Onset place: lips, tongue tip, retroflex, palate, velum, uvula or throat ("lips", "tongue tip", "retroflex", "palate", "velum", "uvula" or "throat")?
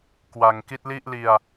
velum